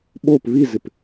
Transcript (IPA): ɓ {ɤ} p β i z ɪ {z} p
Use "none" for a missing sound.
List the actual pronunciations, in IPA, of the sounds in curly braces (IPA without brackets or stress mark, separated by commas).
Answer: o, none